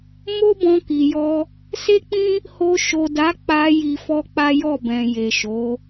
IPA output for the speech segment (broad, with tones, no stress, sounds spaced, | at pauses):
m o˦ b ɔ̃˧ k i˨ j ɔ˧ | s e˦ k͡p ĩ˦ | h o˧ ʃ o˨ d a˨˦ k͡p a˧ j i˧ f ɔ˦ k͡p a˦ j ɔ˦˨ b ɛ̃˨ j e˨ ʃ o˨˦